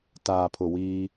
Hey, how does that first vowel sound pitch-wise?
low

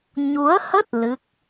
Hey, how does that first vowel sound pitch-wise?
rising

